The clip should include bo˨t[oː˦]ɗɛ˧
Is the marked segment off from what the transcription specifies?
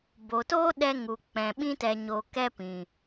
no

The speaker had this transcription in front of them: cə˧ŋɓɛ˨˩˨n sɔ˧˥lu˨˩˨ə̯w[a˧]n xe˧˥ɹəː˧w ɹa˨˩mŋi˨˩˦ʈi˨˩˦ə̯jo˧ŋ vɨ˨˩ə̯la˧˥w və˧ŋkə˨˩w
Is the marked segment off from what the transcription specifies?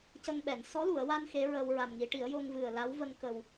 no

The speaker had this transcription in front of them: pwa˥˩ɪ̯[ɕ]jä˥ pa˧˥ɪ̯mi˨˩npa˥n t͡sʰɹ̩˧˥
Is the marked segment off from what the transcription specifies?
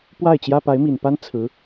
yes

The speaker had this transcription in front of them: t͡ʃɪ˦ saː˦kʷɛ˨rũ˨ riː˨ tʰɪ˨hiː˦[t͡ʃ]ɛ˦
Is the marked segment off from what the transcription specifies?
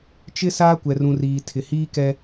yes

